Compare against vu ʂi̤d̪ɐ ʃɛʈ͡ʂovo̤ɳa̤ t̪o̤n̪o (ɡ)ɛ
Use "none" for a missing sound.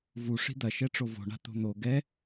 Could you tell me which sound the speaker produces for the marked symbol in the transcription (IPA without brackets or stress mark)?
ɡ